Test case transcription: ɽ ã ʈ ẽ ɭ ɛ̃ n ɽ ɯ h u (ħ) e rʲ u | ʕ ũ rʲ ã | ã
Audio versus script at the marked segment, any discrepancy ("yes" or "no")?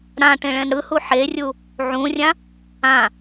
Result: no